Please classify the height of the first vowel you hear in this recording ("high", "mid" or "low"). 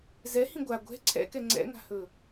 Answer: mid